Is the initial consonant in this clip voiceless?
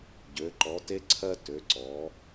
no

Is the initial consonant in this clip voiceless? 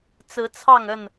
yes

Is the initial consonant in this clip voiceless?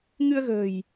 no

